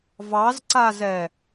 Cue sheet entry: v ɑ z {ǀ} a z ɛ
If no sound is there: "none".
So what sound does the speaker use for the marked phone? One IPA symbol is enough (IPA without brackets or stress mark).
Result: ǀ